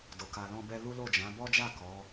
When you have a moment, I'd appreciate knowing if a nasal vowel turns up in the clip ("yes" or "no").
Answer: yes